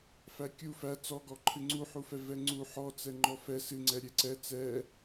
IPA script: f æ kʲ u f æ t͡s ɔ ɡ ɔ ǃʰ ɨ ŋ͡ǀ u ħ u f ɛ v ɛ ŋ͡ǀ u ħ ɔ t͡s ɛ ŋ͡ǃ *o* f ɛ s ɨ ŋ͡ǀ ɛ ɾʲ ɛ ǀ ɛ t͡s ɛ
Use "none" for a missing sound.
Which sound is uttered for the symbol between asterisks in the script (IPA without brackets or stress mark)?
ɔ